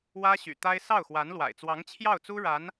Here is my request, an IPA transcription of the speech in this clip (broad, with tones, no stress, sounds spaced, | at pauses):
w ä˥ ɕ y̰˨˩ t̪ a˥ ɪ̯ s ɑ˥˩ ʊ̯ x w a˧˥ n l w a̰˨˩ ɪ̯ t͡s w ɑ˧˥ ŋ t͡ɕʰ j ɑ˥˩ ʊ̯ t͡s u˥ ɻ a˧˥ n